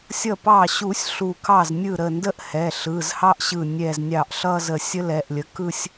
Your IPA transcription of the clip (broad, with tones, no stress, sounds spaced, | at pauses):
sʲ ʌ˧˩ p ɑ˧˩ ɕ u˨˩˦ sʲ ɬ u˧˩ k ɑ˥˩ z nʲ ɯ˥˩ ɾ ə˧˩ n d ə˥˧ ʔ h ɛ˩˧˩ ɬ ɯ˩˧˩ z h ɑ˥ ʔ ɕ ɯ˧˩ nʲ ɛ˧˩ z nʲ ɑ˧˩ ʔ ɬ ʌ˥˧ z ə˧˩ sʲ ə˥ l ɛ˩˧˩ ʔ lʲ ə˩˧˩ k ɯ˥˧ sʲ